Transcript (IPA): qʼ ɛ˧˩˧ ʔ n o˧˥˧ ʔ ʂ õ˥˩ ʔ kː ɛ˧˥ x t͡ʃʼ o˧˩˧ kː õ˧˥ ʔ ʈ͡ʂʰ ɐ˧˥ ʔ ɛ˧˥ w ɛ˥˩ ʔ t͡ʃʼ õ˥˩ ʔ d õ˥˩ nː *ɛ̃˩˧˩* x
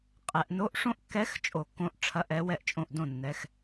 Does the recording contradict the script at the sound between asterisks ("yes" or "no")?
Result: yes